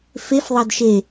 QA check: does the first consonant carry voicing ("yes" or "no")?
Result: no